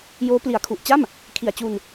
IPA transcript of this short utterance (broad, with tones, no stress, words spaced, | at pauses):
joː˦˥ pli˨˩a̯kʰu˨˩ʔ t͡ɕa˥˩m | kʰi˨˩a̯t͡ɕu˧n